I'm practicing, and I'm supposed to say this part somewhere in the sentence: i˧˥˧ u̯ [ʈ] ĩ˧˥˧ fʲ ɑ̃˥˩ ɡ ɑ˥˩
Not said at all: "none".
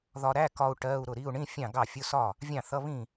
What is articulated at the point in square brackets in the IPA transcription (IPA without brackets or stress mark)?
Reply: ɳ